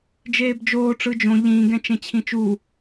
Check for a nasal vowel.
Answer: present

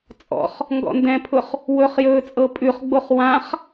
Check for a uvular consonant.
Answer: present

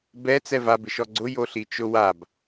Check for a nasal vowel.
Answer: absent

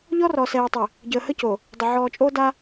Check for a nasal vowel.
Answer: absent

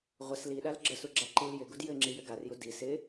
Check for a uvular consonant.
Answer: present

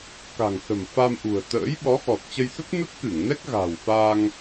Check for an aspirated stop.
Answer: absent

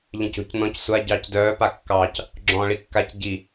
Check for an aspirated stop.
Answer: absent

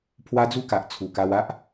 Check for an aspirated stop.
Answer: present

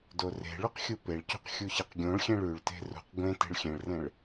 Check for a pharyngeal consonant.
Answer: absent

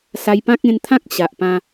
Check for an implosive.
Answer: absent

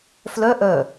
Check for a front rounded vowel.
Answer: present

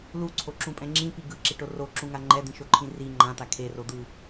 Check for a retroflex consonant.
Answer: present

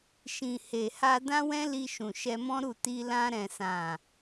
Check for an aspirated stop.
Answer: absent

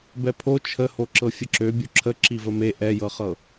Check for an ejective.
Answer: absent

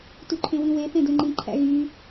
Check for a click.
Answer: present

